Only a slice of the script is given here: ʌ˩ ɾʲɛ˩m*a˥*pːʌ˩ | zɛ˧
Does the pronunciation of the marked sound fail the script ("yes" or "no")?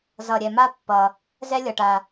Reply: no